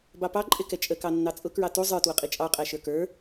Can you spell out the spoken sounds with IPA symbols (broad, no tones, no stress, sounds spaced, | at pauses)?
b ɑ p ɑ ǃʼ ɪ k ɛ t͡ʃʼ ə k ɑ nː ɑ t͡sʼ ʊ k ɹ ɑ t u zˤ ə˞ t w ʊ qʼ i t͡ʃʼ ɑ qʼ æ ʃ ə˞ k ə˞